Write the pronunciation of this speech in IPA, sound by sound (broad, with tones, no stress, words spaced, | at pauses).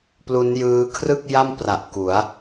plu˦˥njɯː˦˥ kʰrɯ˥˩k̚ja˥˩mpra˨˩ʔ ku˩˦a̯